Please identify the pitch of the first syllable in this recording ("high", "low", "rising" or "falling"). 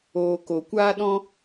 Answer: low